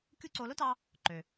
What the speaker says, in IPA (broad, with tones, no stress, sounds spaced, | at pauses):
kʲ u˥ ǀ o˧ l o˥ t ɑ˧ | ǃ ø˩